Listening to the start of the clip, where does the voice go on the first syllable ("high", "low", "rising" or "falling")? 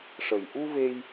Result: low